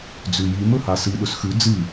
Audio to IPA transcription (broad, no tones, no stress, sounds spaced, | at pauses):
d͡z ʉ j i m ɵ h a s ɨ ɗ ɵ s x ʉ d͡z ɨ